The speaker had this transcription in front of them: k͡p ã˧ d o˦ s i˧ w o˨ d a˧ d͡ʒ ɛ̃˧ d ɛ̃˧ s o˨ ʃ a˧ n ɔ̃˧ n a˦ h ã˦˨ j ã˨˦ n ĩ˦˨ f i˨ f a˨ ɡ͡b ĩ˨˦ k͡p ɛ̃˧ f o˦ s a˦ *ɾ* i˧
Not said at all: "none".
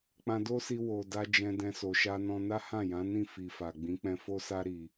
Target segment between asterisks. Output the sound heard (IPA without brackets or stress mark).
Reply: ɾ